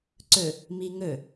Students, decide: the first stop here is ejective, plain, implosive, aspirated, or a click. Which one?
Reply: click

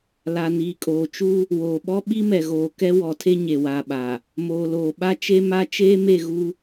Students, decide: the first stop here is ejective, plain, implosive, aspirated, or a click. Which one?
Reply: ejective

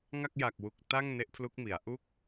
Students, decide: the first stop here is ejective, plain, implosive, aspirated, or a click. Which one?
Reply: plain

